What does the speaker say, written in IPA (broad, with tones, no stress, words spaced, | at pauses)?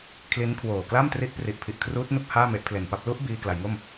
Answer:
kʰli˦˥nkʰwoː˨˩kla˥˩m tri˦˥ʔpri˨˩ʔpʰi˨˩ʔ kʰruː˦˥t̚nu˥˩k̚ haː˥˩me˦˥ʔpʰle˨˩npa˥˩p̚ lu˦˥ʔ biː˧kla˩˦jŋo˥˩m